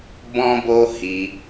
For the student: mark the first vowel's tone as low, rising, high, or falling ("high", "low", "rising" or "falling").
high